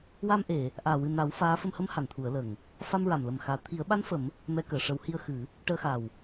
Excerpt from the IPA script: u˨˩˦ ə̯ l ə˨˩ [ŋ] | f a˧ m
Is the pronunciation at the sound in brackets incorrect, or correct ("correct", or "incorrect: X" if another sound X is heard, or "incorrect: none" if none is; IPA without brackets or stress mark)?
correct